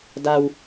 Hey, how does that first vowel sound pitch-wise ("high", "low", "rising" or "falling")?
low